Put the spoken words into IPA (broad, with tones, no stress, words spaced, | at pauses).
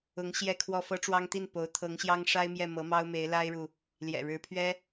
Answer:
ʊ˧˥ŋ ɕjɛ˥˧kʰwɔ˥˩ fɤ˥ʈ͡ʂwɑ˥ŋt̪i˥˩n po˧˥ʊ̯ t̪ʰɤ˧˥ŋɕjɑ˥ŋʂa˥ɪ̯mjɛ˥˩ mɤ˧˥mɑ˥ʊ̯me˧˥ɪ̯ la˥ɪ̯ɻu˨ | ljɛ̰˨˩ɻɻ̩˧˥pʰɥɛ˥